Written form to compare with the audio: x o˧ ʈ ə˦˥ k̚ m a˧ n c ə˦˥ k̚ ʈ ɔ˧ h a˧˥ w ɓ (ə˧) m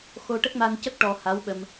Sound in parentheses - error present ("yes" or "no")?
no